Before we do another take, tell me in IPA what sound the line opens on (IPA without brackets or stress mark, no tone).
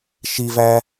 ʃ